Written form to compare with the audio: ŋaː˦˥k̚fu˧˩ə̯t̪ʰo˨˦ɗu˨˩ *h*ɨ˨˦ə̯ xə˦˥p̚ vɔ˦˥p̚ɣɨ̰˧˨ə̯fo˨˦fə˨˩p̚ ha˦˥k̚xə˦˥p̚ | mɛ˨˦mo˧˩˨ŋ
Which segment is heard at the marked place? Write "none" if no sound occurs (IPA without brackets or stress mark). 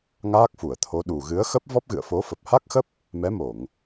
ɣ